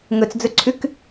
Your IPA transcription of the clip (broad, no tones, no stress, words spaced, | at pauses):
ŋɵt͡sd͡zɵǀʰʉk